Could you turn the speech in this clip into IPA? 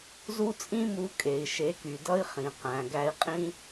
z u˦ t͡sʼ ĩ˦ m u˨˦ kʼ e˨ i̯ ʃ e˨˦ k y˨ d ʌ˦ i̯ χ ĩ˨ q æ̃˨ ɡ æ˧ i̯ qʼ ĩ˦

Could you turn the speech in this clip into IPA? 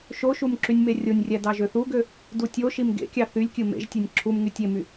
ʃ o ʃ u m ǁ y nʲ m e rʲ o nʲ rʲ æ d ɑ ʒ ø θ u ɡ ø | d u tʲ o ʃ i m ɡ ḛ kʲ ɑ θ y lʲ kʲ ɯ m ḛ ʒ tʲ e nʲ ǁʰ u m ŋ y tʲ e m y

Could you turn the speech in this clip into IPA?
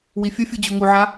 w i fʲ ə fʲ u d͡ʑ u ŋ u ʕ a

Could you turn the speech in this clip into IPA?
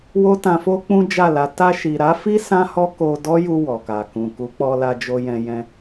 w o˦ t ã˧ f o˦ k͡p ũ˦ d͡ʒ a˦˨ l a˨˦ t a˧ ʃ i˨ ɾ a˨˦ f i˦ s ã˦ h ɔ˦ k o˧ d ɔ˦ j u˧ w ɔ˨ k a˨ k ũ˨ k u˨˦ k͡p ɔ˧ l a˧ d͡ʒ o˧ j ɛ̃˧ j ɛ̃˧

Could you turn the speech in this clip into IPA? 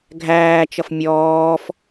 ɡʱ æː t͡ʃ ʌ f mʲ ɔː f

